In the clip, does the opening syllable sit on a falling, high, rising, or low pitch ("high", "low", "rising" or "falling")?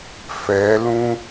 rising